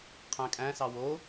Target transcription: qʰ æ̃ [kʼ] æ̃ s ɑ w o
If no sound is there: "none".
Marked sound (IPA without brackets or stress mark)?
kʼ